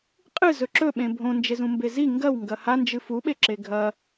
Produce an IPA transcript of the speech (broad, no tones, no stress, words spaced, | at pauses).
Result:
qʼɨ zɵǁɵɓẽ bʱõ nd͡ʒezũmbezi ŋɡɐw ŋɡɐha nd͡ʒɨfuɓeǁe ɡʱɐ